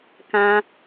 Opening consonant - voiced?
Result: no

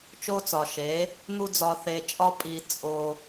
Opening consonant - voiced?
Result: no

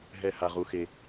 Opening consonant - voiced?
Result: yes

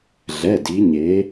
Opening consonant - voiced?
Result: yes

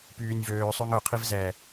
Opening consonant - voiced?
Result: no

